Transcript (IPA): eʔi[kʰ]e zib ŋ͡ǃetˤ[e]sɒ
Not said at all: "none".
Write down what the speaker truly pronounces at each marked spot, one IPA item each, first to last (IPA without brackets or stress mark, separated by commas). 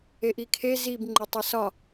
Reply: kʰ, e